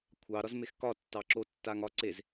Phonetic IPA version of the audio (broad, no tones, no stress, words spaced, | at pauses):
kʷʰɑ ɾɒzmexkɒ tːɑǁo tːaŋɒ ǀez